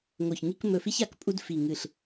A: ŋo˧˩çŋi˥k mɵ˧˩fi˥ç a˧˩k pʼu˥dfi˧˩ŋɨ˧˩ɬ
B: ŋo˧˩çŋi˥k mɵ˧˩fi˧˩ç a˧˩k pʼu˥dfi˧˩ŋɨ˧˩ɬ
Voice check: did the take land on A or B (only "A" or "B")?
A